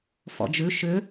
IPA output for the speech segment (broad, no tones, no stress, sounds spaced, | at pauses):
f ɔ̰ d͡ʒ ʉ ʃ ʏ